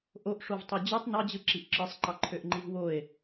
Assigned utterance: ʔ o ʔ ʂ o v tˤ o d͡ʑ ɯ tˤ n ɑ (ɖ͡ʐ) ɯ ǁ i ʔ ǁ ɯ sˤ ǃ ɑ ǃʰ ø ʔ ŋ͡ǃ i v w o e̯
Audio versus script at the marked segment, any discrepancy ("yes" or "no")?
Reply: yes